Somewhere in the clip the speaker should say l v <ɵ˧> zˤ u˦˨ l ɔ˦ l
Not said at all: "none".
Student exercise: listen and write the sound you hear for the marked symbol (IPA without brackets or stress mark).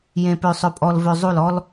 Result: ø˧